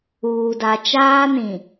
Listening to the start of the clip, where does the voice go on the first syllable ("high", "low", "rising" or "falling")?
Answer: low